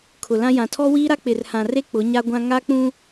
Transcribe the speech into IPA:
kʰ ʊ˨ l ã˦ j ã˨ tʰ ɔ˦ w iː˦ ɾ a˦ k͡p ɪ˨ r h ã˨ r e˦ k͡p ʊ˨˦ ɲ a˦ ɡʷ ã˦ ŋ a˦ k͡p ũ˦

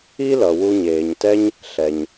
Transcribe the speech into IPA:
i˥ l ʌ˩ w u˧ ɲ eː˩ ɲ t ɛ˥ ɲ | ɬ ɛ˩ ɲ

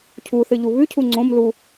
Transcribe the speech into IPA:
cʰ u θ ɨ ʎ u β ʉ cʰ u ŋ͡ǀ õ m l u

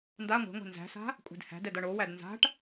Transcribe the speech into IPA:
n d a ŋʷ e̤ ŋʷ e̤ n z æ̤ s a̤ | kʷʼ e̤ d h æ̤ d ɛ d ʌ ɳ o w æ d n z a̤ ʈ

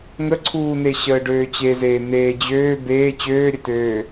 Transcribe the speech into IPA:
ŋ ə ǀʰ uː n e ɕ əː ɖ øː t͡ɕ e z eː n̪ eː d͡ʑ øː b eː t͡ɕ øː ɾʲ ə t øː

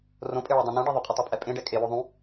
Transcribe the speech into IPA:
r õ pʼ e ɭ ɛ dˤ õ n ũ ɖ e ðˤ ʏ qʼ ɐ tˤ œ pʼ ɛ pʼ ẽ ɖ ɛ kʼ e w o ðˤ ũ

